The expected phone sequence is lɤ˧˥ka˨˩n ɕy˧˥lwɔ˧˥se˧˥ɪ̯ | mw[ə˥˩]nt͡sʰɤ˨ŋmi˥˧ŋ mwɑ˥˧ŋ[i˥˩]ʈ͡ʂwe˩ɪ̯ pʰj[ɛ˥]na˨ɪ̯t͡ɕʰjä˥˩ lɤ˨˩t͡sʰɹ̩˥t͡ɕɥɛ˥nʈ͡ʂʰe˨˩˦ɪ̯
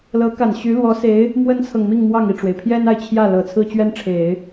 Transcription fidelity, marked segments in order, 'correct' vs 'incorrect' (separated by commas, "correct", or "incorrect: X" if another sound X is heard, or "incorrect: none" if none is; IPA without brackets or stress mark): incorrect: ə˥, correct, correct